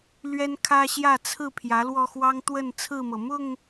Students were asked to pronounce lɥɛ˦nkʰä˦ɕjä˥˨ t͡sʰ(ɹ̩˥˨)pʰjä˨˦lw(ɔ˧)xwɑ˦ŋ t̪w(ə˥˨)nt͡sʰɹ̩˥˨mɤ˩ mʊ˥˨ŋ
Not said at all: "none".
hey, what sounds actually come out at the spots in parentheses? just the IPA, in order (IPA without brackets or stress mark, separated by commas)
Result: ɹ̩˥˨, ɔ˧, ə˥˨